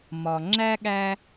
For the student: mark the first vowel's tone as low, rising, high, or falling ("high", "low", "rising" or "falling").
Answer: low